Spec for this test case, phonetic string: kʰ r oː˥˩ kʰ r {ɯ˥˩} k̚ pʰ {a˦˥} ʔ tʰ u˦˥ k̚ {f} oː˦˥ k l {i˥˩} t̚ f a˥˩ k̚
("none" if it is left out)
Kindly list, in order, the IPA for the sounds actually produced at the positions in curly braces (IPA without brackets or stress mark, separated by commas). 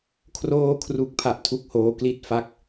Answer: u˥˩, a˦˥, h, i˦˥